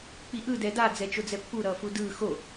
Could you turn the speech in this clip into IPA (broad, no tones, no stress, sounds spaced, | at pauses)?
k͡p i ʔ ɯ d ɛ d a d͡z ɛ t͡ʃ o d͡z ɛ pː u ɾ ʌː f u d ɯː x o